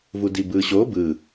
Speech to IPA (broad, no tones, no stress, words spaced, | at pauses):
vudibɯːɕo bɯ